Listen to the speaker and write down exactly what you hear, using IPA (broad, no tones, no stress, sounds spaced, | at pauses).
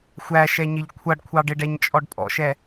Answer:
xʷ æ ʃ ɛ ɲ ɪ ʎ kʷʰ ʌ ɖ kʷʰ ɑ ɖ ɪ ɖ ɛ ɲ t͡ʃʼ ɔ ɖ pʼ ɔ̰ ʃ ɛ